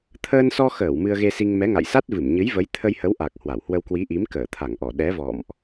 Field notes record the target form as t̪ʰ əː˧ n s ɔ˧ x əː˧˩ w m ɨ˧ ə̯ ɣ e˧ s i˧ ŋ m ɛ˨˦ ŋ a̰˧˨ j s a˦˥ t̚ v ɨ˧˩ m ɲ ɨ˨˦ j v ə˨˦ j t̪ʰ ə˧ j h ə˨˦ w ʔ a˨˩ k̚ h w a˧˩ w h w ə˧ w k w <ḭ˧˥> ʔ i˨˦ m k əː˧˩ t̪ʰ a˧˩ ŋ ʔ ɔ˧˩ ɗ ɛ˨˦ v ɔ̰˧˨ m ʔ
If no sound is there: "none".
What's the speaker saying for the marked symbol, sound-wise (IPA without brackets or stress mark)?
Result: i˨˦